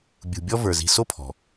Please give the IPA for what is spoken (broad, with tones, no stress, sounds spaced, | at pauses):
bʲ ṳ˨ bʲ ɔ˦ v ə˞˩ z i̤˨ s o˥ pʰ ɔ̤˩